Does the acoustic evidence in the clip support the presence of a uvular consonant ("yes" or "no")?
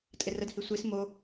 no